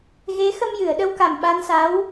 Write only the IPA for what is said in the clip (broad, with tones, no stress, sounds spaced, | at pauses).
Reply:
ɣ e˧˥ x ə˧ m j ɨ˨˩˨ ə̯ ɗ ə˧ w k a˨˩ m ɓ a˧ n s a˧˥ w